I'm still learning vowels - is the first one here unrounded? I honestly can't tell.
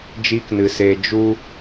yes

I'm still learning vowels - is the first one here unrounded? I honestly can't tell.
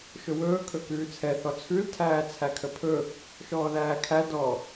no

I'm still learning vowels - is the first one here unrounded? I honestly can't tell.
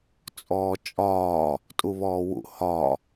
no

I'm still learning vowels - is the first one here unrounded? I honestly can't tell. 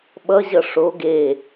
yes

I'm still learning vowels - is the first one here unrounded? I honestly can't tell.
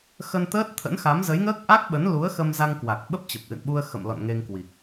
yes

